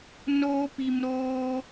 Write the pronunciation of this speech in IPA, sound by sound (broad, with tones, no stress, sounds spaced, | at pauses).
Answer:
n oː˧ p i˨ m ɾ oː˧